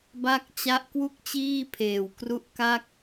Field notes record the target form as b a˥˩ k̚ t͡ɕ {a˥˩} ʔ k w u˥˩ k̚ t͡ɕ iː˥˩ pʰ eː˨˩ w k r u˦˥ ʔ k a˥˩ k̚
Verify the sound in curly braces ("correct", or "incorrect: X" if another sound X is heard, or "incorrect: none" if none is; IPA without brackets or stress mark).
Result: correct